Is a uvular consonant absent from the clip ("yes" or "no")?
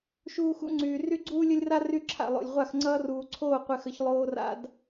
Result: no